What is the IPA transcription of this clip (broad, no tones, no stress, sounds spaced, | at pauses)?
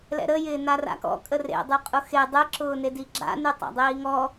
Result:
l ɛ̰ ɾ ə j ɪː n a r a̰ k ɔ̰ kʼ ə r ḛ dˤ y qʼ ʊ x e dˤ ɪ ǁ ʊː n e d i ɡ͡ǁ a̰ n y tˤ a̰ dˤ iː ŋ ɔ